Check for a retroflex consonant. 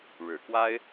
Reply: present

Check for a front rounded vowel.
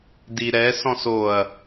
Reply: absent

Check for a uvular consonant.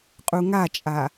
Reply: present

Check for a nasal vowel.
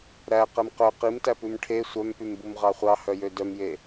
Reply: absent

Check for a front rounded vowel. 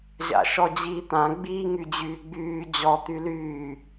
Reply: present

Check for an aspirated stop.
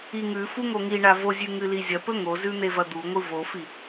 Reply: absent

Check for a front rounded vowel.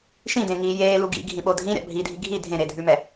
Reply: absent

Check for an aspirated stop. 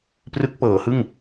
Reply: absent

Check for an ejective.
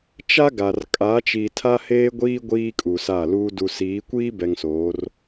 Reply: present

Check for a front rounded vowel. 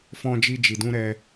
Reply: absent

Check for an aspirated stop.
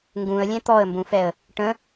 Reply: absent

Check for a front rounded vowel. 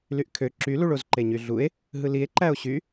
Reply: present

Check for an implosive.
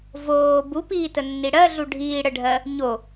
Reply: absent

